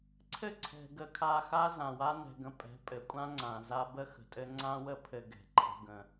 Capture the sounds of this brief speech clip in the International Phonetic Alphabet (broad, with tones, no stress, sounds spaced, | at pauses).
ǀʰ ɘ˦ ǀʰ ɛ̤˨ ɡ ə˨ kʰ a˨ x a˦ z ã˨ w a˦ n ɛ̤˨ ɡ ə̃˨ pʼ ɛ̤˨˦ pʼ ɘ˨ kʷʼ ã˦ ŋ͡ǀ ã˨ z a˦ b ə˦ x ə̤˨ tʼ ɘ˦ ŋ͡ǀ ã˦ w ə˦ pʰ ɘ˨ ɡ ɛ̤˨ ǃʰ ə̤˦ ɡ ə̃˦